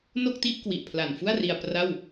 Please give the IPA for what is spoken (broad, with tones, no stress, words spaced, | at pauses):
no˥˩k̚ti˥˩ʔ kwi˨˩ʔpʰla˨˩nfu˥˩a̯ ri˧a̯pra˥˩w